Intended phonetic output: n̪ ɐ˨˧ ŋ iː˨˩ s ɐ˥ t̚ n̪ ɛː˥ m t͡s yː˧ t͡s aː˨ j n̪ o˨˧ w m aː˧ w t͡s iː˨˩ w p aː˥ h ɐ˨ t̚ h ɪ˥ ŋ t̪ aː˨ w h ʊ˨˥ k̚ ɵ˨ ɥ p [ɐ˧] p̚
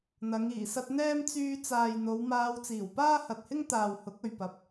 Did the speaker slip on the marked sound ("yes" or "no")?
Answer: yes